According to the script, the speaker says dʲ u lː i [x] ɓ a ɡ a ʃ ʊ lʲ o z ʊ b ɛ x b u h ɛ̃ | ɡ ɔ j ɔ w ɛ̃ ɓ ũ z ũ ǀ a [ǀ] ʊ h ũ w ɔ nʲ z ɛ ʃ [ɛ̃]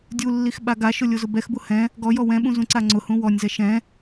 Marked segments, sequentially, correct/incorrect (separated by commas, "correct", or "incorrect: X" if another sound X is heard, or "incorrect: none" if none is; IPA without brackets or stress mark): correct, incorrect: ŋ͡ǀ, correct